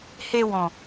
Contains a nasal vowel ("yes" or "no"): yes